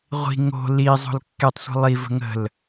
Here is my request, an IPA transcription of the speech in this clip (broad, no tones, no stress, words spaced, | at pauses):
ʁʷi̤ ŋo̤ li zˤo̤lkːetˤ sʷi̤lˠi və̤ŋə̤l